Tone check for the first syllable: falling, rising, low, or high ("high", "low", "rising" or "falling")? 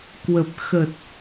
low